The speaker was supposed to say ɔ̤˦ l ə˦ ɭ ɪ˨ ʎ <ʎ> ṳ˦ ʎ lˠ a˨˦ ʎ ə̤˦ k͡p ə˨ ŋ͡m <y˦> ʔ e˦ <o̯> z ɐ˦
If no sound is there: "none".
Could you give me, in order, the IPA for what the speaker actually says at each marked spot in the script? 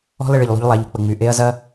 lˠ, y˨, ɐ̯

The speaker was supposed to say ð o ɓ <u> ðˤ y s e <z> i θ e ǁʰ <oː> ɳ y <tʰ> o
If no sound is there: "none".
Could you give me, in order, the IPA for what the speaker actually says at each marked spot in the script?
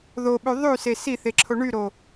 y, s, o, ɾ

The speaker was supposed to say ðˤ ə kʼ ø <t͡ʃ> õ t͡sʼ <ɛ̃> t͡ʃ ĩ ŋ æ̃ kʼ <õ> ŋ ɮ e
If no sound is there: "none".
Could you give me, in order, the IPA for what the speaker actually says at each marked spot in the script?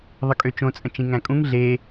t͡ʃ, ə̃, ũ

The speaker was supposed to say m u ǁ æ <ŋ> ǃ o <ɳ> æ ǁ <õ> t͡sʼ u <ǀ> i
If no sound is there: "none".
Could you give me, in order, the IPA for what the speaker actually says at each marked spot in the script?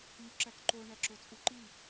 k, ɳ, o, ǃ

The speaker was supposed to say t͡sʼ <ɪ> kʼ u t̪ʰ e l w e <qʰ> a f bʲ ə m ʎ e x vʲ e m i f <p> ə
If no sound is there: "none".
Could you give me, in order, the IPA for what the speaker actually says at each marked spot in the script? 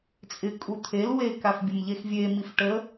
ɪ, k, ʈ

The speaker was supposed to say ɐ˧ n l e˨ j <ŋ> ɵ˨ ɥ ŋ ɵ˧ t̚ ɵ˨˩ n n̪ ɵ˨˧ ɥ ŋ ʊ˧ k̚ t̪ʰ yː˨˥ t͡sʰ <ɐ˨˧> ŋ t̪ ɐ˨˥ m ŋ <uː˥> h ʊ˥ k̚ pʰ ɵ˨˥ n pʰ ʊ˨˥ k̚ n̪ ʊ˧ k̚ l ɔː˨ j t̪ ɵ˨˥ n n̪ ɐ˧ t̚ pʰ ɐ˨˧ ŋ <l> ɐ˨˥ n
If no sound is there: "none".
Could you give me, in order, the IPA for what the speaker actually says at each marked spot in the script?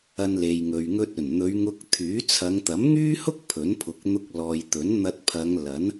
ŋ, ɐ˨˧, yː˥, l

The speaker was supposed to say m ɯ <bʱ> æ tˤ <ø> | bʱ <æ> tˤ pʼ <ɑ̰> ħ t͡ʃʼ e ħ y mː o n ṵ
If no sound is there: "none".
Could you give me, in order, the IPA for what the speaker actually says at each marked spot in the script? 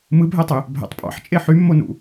bʱ, ø, æ̰, ɑ̰

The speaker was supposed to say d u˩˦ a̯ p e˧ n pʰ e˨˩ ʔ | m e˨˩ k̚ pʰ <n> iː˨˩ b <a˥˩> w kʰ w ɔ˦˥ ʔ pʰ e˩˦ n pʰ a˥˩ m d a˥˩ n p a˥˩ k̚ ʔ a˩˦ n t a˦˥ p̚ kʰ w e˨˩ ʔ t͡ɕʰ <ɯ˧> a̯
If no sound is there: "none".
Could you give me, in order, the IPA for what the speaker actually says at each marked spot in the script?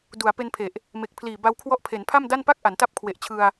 l, a˦˥, ɯ˧

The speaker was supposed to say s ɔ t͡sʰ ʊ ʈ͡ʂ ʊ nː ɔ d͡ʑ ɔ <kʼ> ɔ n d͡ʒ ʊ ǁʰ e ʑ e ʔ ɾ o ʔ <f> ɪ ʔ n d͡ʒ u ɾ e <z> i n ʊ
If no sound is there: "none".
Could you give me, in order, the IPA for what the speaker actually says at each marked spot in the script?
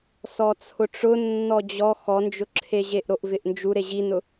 x, v, ʑ

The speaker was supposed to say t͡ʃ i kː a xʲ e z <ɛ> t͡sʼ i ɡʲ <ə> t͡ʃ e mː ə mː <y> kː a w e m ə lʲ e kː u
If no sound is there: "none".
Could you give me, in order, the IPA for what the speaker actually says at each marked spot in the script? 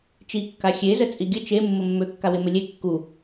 ə, ə, ø

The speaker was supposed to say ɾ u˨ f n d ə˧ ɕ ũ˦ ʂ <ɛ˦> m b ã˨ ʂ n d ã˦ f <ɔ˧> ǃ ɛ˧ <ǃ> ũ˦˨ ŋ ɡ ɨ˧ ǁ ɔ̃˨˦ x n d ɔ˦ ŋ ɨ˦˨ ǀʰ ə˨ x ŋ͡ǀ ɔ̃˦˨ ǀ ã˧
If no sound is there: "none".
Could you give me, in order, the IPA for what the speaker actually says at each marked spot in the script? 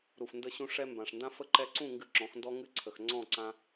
ɛ˦, ə˧, ǀ

